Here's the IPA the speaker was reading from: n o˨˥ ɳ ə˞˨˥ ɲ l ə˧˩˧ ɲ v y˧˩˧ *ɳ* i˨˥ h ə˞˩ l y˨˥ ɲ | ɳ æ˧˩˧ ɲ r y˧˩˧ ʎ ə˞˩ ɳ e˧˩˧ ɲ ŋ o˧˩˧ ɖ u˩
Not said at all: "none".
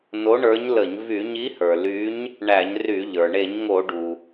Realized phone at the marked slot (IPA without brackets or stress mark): ɲ